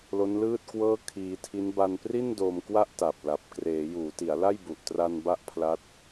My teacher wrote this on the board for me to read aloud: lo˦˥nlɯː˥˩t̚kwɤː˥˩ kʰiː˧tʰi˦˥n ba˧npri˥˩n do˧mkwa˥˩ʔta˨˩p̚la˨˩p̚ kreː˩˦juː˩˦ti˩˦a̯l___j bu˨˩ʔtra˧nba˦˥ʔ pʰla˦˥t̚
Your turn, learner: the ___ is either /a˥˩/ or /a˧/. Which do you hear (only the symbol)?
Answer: a˥˩